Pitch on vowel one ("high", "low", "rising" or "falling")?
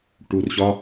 low